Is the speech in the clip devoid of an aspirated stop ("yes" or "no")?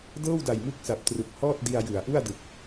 yes